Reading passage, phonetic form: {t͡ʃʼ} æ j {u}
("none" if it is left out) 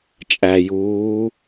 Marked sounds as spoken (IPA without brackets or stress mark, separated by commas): t͡ʃʼ, uː